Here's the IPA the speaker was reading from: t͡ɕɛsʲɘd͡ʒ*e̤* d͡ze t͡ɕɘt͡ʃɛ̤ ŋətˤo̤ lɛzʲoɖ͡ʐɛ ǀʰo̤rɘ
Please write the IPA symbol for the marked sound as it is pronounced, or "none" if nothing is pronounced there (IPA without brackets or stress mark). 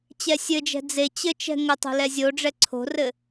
ɛ̤